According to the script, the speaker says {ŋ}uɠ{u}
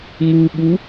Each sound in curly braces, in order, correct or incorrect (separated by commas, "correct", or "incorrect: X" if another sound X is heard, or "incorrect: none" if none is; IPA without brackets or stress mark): correct, correct